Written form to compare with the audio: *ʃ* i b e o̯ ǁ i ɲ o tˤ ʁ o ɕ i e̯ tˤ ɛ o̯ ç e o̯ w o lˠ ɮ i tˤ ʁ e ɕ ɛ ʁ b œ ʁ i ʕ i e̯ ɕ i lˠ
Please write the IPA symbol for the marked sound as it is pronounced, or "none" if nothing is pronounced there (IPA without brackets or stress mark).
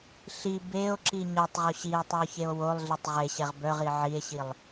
ɬ